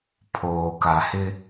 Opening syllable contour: low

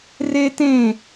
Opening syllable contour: high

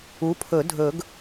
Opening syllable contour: rising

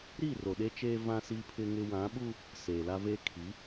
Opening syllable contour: falling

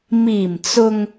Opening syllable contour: low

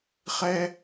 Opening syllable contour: low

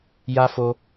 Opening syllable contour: high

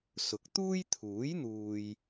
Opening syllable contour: rising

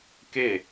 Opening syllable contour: falling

